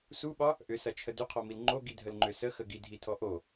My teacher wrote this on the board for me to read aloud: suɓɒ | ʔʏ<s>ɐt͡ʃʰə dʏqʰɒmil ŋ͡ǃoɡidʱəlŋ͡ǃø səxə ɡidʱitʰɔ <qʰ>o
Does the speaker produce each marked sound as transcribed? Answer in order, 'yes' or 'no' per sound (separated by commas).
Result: yes, no